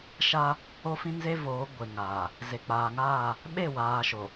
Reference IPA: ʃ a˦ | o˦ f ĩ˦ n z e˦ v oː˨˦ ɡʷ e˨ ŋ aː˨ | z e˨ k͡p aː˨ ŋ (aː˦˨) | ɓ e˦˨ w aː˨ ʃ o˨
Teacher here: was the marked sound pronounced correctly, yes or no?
yes